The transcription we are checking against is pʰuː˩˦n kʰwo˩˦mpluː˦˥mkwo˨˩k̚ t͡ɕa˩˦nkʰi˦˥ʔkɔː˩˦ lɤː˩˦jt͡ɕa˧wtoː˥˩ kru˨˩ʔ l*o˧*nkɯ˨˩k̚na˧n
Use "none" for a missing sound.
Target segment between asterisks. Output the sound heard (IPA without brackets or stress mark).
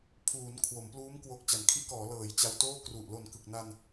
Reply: o˨˩